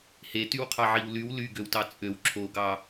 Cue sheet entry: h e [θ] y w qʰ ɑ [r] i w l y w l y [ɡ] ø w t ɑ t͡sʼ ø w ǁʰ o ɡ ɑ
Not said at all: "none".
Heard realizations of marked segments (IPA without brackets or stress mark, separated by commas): t, ʕ, ɡ